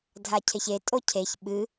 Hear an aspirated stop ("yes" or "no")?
yes